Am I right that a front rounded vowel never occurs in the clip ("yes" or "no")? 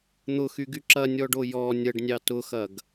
no